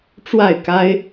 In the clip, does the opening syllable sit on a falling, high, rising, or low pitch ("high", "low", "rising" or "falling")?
falling